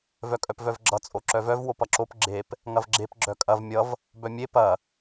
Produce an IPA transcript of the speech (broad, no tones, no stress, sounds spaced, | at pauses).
v œ kʼ œ p v œ v ɡ͡ǁ ʌ t͡sʼ o ǁ œ v œ v w o p ʌ ǁ o p ɡ͡ǁ e p | ŋ ɐ v ɡ͡ǁ e p ɡ͡ǁ œ kʼ ɐ v mʲ ʌ v | b œ mʲ e p ɐ